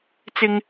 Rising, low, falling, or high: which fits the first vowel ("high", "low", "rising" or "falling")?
high